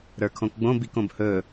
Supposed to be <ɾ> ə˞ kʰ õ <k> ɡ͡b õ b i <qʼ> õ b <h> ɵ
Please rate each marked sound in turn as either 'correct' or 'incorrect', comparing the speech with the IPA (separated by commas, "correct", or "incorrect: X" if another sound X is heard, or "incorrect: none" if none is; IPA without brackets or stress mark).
correct, correct, incorrect: k, correct